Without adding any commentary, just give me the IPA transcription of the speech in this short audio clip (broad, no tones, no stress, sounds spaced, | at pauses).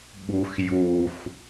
ɓ u x j u x